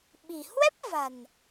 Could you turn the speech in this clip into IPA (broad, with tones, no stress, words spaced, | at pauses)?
ɓi̤˨˩ hwɛ˦˥p̚va̤˨˩n